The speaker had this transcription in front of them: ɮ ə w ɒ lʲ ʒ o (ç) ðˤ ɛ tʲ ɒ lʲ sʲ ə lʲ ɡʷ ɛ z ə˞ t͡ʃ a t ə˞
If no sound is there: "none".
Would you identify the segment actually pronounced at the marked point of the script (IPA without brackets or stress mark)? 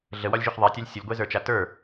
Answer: ç